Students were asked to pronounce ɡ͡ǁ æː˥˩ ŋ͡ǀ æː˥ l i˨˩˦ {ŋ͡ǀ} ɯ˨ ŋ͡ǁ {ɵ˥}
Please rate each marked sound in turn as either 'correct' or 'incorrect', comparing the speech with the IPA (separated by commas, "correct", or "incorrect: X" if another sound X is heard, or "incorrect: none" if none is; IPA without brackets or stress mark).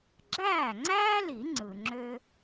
correct, incorrect: ø˥